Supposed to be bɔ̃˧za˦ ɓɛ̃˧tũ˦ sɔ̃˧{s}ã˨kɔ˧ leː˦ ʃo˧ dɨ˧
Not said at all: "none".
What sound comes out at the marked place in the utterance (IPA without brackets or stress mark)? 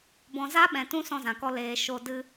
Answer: z